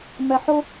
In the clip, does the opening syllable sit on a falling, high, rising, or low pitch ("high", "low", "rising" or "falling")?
low